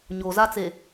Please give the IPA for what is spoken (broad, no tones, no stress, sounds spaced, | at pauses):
ɲ o z a t͡s e